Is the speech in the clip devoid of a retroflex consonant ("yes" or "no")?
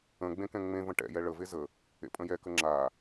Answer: no